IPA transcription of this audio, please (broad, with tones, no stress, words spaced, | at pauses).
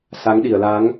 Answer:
sa˨˦ŋɗi˧˩ə̯la˨˦ŋ